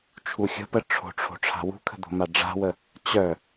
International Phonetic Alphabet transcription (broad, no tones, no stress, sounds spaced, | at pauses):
t͡ʃʰ u xʲ ə̤ p ə ʈ͡ʂʰ o̤ ʈ͡ʂʰ o̤ ʈ͡ʂʰ a̤ w ṳ kʰ ə̤ d̪ o̤ m a ɖ͡ʐ a̤ w ə | t͡ɕ œ